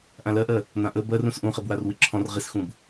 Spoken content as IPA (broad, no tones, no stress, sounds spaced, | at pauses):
ʔ ã l ɜ ʔ ɜ | n̪ ã ʔ ə b ɜ r ũ s ʔ ũ χ e b w a r w i ǁʰ ɔ̃ r ʁ i s x ũ b